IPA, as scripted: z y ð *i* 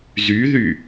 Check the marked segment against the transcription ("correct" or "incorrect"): incorrect